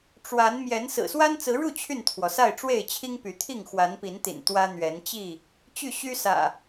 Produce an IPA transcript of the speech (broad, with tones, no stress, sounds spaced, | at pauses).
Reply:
ʈ͡ʂ w a˨˦ n m j ɛ˨˦ n s ɹ̩˨˩ s w a˦ n t͡s ɹ̩˨˦ ɻ u˥˨ t͡ɕʰ y˥˨ n t̪ʰ w ɔ˩ s a˥˨ ɪ̯ ʈ͡ʂ w e˥˨ ɪ̯ t͡ɕʰ i˦ ŋ p y˨˦ t̪ʰ i˥˨ ŋ x w a˨˦ n p i˨˦ n t̪ ḭ˨˩ n t̪ w ä˦ n̪ ɥ ɛ˨˦ n t͡ɕ i˥˨ | t͡ɕ y˥˨ ɕ y˦ s ä̰˨˩